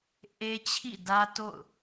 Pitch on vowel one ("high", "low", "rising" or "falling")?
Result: high